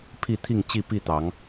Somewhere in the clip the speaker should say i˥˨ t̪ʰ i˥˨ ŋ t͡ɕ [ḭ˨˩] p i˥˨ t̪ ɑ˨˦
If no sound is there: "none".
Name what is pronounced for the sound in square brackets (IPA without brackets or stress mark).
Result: i˥˨